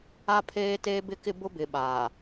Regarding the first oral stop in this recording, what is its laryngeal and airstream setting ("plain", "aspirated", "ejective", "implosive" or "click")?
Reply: aspirated